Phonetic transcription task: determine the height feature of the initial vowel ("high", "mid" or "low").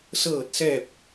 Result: mid